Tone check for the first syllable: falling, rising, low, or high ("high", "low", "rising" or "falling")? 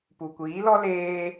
low